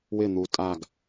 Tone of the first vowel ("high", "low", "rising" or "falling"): falling